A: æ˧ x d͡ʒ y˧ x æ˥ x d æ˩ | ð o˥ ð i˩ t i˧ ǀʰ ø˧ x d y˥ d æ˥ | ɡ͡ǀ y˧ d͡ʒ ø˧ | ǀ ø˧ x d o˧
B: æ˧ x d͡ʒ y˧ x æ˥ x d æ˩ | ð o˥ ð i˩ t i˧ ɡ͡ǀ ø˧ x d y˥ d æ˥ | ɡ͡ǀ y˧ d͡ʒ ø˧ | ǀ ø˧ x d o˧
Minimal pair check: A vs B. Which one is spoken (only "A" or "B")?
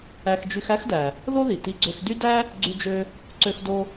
B